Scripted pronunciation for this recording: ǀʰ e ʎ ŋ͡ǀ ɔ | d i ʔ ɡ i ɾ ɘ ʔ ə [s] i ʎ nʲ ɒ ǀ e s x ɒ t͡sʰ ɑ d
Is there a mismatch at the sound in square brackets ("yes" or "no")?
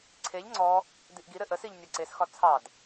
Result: no